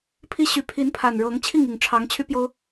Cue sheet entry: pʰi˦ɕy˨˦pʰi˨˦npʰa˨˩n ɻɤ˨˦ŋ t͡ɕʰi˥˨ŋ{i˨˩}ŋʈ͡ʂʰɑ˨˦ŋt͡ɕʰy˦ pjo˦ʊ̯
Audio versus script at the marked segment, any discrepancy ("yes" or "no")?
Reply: no